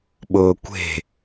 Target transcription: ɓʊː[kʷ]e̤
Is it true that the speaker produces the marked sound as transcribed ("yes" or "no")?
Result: yes